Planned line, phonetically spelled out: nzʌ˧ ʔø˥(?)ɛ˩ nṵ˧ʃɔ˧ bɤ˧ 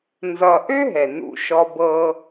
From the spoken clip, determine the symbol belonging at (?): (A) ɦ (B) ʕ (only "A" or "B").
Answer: A